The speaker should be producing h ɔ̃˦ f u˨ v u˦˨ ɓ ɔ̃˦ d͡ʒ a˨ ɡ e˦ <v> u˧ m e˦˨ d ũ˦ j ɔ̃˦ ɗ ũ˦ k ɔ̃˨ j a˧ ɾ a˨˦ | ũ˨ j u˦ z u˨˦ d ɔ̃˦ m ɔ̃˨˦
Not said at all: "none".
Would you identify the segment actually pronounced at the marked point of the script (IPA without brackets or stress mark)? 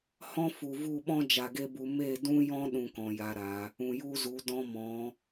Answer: b